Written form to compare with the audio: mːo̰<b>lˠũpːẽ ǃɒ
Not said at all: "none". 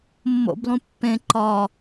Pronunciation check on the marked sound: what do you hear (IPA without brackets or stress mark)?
b